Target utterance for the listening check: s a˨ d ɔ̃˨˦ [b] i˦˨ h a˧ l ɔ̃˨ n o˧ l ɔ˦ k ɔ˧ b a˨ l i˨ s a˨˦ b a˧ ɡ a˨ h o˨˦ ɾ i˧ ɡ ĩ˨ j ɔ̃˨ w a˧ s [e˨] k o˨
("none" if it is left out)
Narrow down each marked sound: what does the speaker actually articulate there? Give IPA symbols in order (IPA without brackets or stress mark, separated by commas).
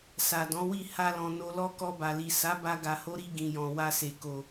w, e˨